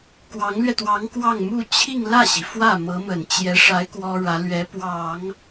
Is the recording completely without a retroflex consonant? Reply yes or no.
no